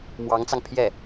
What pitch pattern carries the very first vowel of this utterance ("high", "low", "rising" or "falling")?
rising